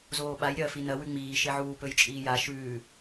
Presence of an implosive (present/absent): present